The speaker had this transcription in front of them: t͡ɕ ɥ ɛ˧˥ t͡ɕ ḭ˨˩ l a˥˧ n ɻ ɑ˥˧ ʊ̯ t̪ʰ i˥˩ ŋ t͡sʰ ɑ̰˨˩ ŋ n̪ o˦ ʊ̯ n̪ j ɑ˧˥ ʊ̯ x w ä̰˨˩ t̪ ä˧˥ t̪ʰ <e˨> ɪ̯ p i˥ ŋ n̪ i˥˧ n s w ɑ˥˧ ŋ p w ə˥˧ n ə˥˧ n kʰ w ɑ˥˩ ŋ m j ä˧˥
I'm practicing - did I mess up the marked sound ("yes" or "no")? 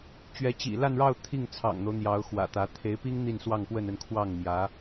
yes